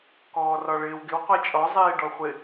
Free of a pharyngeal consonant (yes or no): yes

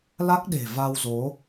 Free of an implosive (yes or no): no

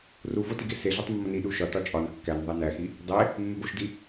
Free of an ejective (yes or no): no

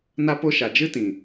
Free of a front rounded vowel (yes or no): yes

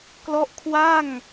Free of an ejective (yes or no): yes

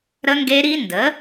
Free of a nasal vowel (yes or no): yes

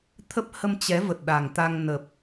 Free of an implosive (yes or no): no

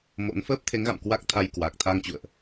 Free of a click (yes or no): yes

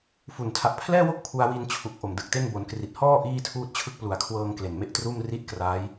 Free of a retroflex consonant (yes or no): yes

